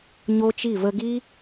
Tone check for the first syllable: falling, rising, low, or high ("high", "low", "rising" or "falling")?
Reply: high